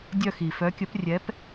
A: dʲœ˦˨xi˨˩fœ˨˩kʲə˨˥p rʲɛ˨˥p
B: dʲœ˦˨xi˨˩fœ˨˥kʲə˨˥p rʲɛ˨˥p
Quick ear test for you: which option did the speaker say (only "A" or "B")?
B